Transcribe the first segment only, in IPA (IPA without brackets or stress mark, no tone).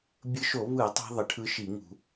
bʲ